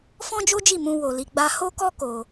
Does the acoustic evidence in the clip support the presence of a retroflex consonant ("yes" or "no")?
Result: no